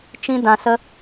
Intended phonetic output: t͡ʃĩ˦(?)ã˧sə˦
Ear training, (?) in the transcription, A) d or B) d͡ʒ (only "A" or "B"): A